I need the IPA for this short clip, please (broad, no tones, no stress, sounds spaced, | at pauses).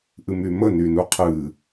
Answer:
ʔ ɨ m y m ə n y n u qʰ ɨ